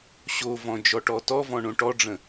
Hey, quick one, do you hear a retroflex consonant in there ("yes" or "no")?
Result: yes